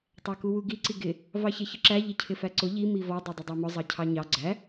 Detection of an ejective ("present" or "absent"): absent